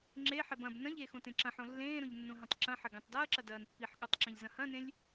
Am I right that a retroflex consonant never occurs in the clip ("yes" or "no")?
yes